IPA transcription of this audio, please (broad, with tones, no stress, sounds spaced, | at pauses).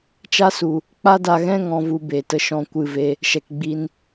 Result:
t͡ʃ a˦ s u˨ | k͡p a˦ d a˧ ɣ ɛ̃˦ ŋ ɔ̃˧ v u˧ b e˨ t ə˧ ʃ ɔ̃˧ kʷ ɨ˧ v e˧ | ʃ ɛ˨ k ɡ͡b i˧ n